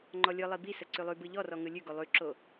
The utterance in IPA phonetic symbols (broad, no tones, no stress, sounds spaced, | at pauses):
ŋ͡ǃ ɔ lʲ ɯ lˠ i b i s ə ǀ ʉ lˠ ʉ b ɯ ʎ ɔ r ɔ ŋ ɯ lʲ ʉ ɡ o lˠ ʉ ǁ o